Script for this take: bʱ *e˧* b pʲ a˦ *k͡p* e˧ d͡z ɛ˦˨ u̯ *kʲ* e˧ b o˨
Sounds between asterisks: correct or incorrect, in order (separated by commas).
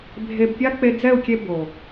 correct, correct, correct